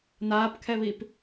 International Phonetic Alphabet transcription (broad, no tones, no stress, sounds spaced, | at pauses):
n aː p kʰ ɛ β i p